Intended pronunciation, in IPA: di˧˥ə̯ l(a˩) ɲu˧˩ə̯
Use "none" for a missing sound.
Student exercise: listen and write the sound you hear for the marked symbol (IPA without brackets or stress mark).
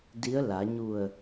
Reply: a˩˧